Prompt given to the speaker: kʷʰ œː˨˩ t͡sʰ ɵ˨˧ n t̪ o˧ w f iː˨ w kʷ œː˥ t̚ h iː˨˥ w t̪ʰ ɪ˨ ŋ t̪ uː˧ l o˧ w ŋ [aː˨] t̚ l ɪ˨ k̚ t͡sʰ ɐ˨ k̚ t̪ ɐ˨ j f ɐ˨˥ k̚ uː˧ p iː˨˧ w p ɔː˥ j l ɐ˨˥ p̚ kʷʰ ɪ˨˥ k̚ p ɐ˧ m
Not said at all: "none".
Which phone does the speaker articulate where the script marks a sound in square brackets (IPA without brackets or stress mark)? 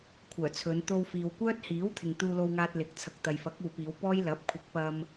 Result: aː˧